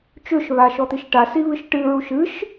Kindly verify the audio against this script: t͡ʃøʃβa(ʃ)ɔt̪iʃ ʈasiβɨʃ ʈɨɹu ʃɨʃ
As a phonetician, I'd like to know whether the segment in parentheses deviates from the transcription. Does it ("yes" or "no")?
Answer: no